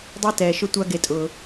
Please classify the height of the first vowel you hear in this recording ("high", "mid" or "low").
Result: mid